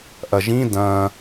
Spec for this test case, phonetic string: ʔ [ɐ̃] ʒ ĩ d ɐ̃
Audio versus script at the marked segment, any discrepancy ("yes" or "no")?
yes